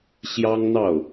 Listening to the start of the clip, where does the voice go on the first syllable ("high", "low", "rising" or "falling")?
high